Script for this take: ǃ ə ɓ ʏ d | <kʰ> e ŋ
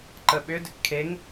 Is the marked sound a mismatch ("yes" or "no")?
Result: no